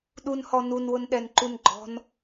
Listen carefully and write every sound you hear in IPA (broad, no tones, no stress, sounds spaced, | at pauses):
ɗ u n h ɔ n u n w ʊ n ɗ ɛ n ǃ u n ɡ͡ǃ ɔ̤ n